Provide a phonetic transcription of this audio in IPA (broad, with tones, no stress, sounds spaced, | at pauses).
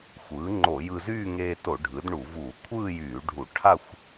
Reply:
xʷ ɯː˩˥ ŋ͡ǃ o˧˩˧ j ɯ˧ z yː˥˧ ŋ eː˧ t o˧˩˧ ɖʱ ɯ˩˥ d ɳ u˧˩˧ v uː˧˩˧ kʷʰ ɯː˥˧ j yː˧˩˧ ɖʱ u˧˩˧ ʈʰ a˥˧ xʷ